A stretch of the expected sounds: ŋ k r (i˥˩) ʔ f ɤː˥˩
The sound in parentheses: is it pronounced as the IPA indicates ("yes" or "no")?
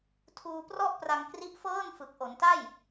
no